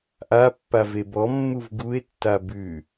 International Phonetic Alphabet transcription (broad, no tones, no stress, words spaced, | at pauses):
ʔapːave bɔmːuv ɡue̯tːa bʉ